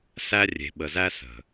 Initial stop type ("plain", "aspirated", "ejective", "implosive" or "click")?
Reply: implosive